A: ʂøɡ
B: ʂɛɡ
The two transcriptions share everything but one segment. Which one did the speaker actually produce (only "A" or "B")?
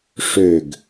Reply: A